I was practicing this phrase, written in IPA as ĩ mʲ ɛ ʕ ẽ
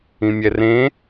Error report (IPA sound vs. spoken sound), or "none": ʕ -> r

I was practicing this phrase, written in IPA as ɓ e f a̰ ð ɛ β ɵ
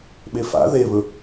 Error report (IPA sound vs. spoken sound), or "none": ɛ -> e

